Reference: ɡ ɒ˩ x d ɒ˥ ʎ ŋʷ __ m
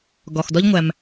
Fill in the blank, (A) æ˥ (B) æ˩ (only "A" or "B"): B